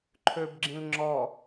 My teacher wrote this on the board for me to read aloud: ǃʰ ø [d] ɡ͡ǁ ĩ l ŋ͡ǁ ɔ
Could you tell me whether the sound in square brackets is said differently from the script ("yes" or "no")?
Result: yes